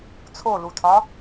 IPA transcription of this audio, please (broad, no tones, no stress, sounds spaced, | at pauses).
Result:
t͡sʰ o l u tʰ ɒ